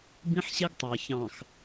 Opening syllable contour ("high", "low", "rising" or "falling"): high